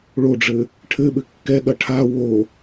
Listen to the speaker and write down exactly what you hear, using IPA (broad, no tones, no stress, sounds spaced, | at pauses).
ɭ o ɖ͡ʐ ɘ | ʈʰ ɘ ɓ ɘ kː ɛ ɠ ɐ ʈʰ a w o